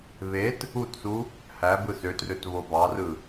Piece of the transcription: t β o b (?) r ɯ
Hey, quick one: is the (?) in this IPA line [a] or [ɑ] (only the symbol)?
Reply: ɑ